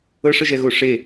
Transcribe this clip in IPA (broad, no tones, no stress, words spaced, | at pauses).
ɤʂəʒɛɣo ʂe